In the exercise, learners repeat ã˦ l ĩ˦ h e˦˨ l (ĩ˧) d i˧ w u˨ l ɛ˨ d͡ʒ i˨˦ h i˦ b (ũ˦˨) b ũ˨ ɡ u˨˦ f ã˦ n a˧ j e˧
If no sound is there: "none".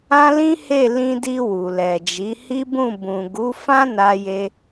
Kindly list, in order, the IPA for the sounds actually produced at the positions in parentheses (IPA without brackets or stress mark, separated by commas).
ĩ˧, ũ˦˨